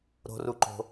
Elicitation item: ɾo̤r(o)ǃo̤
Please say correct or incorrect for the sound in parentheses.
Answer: incorrect